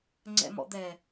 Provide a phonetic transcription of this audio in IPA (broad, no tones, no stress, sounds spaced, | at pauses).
ŋ͡ǀ ɛ̰ m ɔ̰ d̪ ɛ